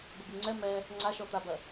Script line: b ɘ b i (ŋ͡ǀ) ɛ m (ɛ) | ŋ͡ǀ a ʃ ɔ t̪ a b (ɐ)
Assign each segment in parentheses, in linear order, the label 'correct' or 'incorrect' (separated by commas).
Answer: correct, correct, correct